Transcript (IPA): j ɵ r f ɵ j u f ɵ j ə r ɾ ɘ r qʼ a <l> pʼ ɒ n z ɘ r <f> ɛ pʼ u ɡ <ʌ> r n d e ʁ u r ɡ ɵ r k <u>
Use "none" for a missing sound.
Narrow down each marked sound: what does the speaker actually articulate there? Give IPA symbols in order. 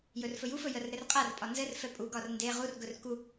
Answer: r, f, ɒ, u

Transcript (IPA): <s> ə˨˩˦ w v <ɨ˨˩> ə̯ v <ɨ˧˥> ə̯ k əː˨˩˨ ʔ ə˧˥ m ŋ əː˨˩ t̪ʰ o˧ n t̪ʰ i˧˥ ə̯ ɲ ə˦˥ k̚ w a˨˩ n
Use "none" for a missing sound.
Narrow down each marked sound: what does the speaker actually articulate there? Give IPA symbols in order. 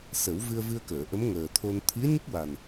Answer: s, ɨ˧, ɨ˧

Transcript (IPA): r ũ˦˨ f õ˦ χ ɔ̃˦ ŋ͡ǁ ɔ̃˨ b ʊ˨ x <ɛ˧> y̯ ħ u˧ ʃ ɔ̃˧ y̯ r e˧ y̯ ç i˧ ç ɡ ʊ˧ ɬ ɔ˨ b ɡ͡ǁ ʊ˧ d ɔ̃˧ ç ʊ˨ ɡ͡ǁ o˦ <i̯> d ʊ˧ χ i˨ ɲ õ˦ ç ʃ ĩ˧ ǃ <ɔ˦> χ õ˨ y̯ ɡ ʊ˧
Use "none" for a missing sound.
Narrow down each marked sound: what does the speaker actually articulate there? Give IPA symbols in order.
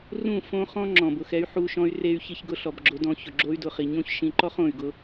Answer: ɛ˧, y̯, ɔ˦

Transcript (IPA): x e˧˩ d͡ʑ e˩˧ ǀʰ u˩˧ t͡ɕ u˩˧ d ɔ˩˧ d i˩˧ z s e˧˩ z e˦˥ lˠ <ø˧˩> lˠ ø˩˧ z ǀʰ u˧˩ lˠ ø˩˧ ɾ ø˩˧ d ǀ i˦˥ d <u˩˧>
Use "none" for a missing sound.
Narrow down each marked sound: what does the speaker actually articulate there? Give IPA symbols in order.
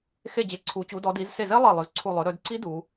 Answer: e˧˩, u˩˧

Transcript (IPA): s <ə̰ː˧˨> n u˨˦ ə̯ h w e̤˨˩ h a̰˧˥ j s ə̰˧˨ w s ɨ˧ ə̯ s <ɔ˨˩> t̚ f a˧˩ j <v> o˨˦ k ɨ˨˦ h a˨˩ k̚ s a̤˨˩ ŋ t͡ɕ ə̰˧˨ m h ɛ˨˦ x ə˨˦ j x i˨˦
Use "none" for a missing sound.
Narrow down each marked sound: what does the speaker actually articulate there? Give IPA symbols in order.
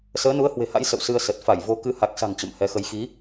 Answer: əː˨˦, ə˨˩, v

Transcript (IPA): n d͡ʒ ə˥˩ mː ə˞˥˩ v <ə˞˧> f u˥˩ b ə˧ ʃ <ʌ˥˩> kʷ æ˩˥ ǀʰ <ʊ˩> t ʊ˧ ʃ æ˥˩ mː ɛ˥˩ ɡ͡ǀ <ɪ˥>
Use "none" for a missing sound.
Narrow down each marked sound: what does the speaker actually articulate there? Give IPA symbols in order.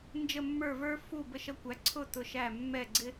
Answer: ə˞˥, ʌ˧, ʊ˥˩, ɪ˥

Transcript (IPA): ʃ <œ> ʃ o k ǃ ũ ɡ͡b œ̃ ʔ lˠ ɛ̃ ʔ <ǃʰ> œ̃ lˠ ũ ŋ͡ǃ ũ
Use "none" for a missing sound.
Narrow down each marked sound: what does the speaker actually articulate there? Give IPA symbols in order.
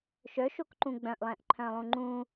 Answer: œ, ǃʰ

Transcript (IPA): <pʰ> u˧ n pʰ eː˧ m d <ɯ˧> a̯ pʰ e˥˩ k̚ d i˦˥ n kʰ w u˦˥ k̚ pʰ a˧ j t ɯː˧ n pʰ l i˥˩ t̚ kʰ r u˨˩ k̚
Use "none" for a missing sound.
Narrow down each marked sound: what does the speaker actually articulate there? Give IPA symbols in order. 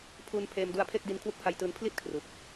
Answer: pʰ, u˧

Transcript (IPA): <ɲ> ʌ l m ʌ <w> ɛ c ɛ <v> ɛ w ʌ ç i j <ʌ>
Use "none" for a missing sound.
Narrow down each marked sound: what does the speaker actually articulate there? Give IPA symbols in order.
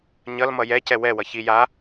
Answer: ɲ, j, w, a

